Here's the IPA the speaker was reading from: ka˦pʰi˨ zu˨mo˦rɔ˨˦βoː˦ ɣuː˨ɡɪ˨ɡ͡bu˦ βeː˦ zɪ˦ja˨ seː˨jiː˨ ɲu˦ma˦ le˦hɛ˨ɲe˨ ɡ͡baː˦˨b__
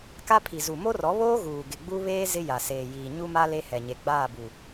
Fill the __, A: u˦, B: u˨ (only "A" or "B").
B